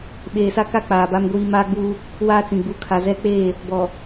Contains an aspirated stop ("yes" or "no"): yes